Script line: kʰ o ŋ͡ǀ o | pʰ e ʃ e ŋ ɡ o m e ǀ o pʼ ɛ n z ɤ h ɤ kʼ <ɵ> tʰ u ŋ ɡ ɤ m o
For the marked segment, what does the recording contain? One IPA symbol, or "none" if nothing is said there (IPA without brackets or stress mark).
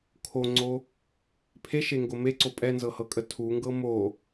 ə